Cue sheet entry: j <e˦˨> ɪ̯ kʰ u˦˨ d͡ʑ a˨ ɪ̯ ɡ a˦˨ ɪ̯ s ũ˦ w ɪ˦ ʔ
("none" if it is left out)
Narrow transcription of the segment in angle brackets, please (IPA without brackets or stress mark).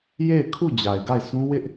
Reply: e˦˨